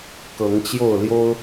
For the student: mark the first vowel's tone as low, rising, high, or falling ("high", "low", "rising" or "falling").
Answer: rising